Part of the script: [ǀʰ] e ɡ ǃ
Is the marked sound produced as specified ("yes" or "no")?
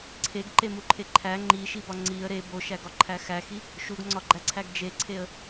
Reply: yes